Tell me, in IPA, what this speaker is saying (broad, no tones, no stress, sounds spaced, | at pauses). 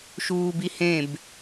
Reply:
ʃ uː b i h ẽ b